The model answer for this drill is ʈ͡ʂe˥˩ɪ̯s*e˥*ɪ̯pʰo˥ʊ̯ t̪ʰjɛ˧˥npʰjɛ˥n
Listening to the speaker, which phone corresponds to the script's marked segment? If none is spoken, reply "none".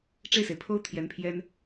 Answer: e˩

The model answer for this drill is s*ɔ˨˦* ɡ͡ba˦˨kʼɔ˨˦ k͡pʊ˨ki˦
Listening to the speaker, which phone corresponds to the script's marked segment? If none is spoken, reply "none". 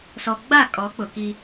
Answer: ɔ˨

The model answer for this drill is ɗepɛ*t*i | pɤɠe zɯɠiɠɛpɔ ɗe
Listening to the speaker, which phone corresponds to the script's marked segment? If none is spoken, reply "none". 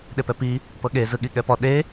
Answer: p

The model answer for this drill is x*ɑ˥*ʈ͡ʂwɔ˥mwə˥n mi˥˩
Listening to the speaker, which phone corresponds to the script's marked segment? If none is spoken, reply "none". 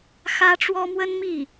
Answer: ä˥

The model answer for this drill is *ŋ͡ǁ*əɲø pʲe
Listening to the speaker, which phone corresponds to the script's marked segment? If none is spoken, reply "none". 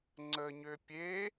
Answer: ŋ͡ǀ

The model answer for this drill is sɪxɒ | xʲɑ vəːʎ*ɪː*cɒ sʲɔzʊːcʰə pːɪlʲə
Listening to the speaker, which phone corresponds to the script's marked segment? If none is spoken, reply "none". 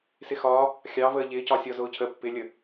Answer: ɪː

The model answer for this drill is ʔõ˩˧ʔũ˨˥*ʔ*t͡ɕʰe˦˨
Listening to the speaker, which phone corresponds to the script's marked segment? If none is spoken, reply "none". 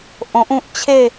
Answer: ʔ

